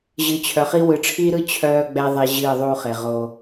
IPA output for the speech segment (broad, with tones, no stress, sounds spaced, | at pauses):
ʑ ɨ˨ t͡ɕʰ œ˨ χ i˦ w ɯ˨ ʈ͡ʂʰ iː˦ ɾ ɯ˦ t͡ɕʰ œː˦ ɡ͡b ɛ˦ ðˤ e˦ ʑ ɨː˦˨ ðˤ uː˦ χ e˨ ʁ o˦